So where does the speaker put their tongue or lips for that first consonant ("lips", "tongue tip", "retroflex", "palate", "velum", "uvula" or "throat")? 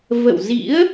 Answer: lips